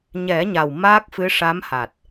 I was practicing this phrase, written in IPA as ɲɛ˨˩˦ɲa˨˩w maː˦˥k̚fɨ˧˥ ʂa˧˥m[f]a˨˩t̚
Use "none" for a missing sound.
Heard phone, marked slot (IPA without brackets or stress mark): h